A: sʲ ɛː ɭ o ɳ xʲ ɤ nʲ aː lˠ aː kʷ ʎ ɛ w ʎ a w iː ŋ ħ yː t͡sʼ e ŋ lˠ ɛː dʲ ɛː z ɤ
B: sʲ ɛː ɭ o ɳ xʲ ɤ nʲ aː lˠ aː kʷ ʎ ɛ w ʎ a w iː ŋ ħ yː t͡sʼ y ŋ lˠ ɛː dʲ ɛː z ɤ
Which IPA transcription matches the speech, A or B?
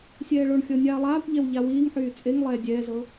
A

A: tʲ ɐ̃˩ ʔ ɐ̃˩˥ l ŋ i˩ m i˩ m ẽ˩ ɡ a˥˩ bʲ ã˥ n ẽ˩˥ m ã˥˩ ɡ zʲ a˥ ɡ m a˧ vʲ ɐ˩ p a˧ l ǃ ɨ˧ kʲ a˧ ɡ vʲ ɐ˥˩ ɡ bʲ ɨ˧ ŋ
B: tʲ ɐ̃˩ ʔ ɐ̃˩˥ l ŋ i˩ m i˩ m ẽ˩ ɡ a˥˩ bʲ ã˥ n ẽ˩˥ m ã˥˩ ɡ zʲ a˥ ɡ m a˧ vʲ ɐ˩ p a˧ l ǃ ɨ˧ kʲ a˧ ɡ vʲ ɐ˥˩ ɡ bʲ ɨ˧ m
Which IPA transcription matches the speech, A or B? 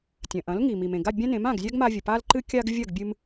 B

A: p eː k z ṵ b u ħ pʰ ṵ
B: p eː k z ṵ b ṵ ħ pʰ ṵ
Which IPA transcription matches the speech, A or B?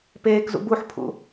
A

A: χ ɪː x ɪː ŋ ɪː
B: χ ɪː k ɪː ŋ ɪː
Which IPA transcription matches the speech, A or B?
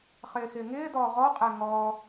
A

